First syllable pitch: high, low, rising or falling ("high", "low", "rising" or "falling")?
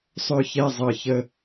falling